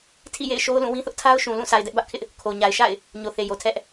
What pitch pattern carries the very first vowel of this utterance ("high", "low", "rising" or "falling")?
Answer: falling